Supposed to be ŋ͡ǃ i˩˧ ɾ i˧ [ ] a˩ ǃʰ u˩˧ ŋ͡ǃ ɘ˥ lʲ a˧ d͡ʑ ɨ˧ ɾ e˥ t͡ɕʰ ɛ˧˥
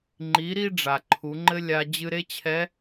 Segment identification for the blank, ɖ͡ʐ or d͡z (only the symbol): ɖ͡ʐ